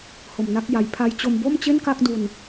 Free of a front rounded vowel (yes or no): yes